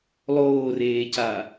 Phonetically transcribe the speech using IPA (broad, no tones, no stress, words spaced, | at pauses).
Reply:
lˠoːreːca